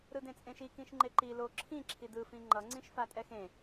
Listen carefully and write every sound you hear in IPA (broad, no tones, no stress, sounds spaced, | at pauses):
ɾ ɯ d ẽ t͡sʼ ẽ ʃ i k ĩ ʃ ŋ͡ǃ e ǃ i l o ǁʰ ĩ ǁʰ i d ɯ f ĩ ŋ͡ǃ ʌ ŋ͡ǀ ĩ ʃ f a tʼ ɛ x ẽ